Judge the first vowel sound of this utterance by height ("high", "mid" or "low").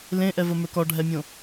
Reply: mid